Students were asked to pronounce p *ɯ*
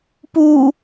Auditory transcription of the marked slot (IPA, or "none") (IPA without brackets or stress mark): u